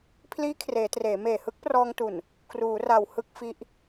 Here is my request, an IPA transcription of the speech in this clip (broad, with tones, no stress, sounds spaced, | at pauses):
pʰ l iː˦˥ kʰ r eː˩˦ t r eː˩˦ m eː˨˩ h ɯ˦˥ k̚ p r ɔː˧ ŋ t u˨˩ n | k r uː˩˦ r a˨˩ w h ɯ˥˩ k̚ f i˦˥ ʔ